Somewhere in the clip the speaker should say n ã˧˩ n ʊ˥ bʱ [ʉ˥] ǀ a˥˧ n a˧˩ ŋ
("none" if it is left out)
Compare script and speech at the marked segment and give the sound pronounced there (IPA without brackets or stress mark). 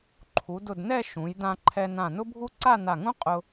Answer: u˥